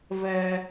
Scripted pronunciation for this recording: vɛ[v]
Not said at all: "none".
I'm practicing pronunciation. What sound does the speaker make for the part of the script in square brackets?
none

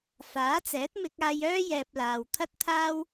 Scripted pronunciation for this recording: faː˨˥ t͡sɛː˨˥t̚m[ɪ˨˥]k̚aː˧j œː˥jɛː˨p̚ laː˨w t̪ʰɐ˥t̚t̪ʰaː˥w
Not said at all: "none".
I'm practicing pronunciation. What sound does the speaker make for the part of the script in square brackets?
ɪ˧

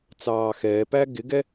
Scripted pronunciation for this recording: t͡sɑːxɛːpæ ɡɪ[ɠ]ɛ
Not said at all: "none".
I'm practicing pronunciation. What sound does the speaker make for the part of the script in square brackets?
ɡ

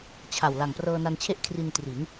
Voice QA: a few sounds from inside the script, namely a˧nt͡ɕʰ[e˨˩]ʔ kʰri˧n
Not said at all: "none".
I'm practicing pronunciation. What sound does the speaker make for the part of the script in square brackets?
e˥˩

